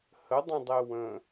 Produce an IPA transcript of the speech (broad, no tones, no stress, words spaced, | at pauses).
hədˤə̃dˤe wə̃